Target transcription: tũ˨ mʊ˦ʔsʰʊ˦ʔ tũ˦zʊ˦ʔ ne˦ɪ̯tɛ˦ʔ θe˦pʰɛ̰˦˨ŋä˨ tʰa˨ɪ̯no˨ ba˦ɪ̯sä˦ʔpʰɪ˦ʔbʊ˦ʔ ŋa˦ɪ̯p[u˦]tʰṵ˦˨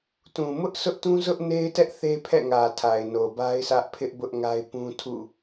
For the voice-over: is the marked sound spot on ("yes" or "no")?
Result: no